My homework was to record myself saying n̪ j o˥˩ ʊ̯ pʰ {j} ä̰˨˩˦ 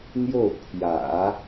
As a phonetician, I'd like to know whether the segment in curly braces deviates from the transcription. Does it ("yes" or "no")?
no